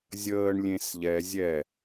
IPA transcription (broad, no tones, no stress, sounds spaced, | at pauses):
zʲ əː ɳ lʲ ẽ s ʎ ɛ zʲ ɛ